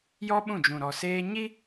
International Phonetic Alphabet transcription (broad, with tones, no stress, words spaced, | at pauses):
jɔ˦ɓũ˦˨d͡ʒũ˨ ɾɔ˨seː˦ ɲi˦